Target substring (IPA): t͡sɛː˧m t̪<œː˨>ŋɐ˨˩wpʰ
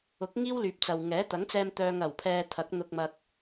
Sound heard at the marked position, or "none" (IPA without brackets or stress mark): œː˨